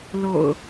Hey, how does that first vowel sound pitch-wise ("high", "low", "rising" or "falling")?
low